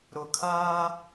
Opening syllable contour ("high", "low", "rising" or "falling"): low